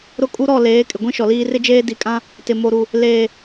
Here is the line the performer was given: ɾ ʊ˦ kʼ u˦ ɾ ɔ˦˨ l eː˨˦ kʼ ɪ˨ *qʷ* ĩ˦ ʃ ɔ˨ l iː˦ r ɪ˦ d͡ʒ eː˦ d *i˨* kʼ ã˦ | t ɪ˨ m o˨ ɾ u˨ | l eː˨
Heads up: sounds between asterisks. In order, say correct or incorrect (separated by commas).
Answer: incorrect, correct